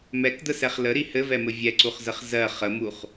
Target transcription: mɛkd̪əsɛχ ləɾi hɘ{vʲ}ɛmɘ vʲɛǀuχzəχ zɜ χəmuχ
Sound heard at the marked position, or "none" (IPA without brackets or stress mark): v